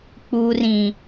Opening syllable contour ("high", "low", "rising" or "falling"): low